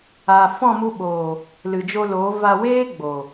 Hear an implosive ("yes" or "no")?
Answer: yes